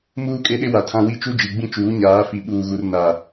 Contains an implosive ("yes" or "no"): yes